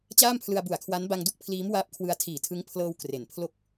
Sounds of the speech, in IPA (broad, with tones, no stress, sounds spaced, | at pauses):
t͡ɕ aː˥˩ m pʰ l ɯ˧ a̯ b u˨˩ a̯ kʰ w a˦˥ n b a˧ ŋ d u˥˩ k̚ pʰ l iː˦˥ m w aː˦˥ p̚ kʰ w ɯ˧ a̯ tʰ iː˨˩ tʰ ɯ˦˥ ŋ pʰ l ɤː˧ w k r e˩˦ n pʰ l o˥˩ k̚